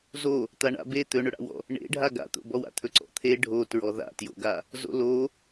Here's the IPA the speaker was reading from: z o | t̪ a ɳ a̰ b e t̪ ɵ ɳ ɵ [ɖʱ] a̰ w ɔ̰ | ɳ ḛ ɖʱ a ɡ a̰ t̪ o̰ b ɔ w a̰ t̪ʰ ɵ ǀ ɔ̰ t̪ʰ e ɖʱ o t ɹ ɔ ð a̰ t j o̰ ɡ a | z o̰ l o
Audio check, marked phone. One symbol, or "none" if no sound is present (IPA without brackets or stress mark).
ɽ